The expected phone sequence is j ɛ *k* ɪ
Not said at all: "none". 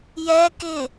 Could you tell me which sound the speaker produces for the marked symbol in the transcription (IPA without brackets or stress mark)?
k